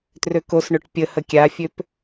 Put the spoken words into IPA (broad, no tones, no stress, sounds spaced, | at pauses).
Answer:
t r ø k o s ɳ ø ʈ pʲ ə h ə kʲ a fʲ ø p